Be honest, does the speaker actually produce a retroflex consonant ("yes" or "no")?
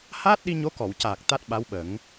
no